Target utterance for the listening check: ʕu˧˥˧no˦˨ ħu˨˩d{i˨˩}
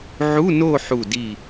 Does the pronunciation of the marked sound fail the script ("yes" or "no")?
no